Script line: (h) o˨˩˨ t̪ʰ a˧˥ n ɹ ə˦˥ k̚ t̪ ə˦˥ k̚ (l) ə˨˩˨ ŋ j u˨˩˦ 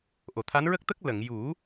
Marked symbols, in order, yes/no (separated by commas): no, yes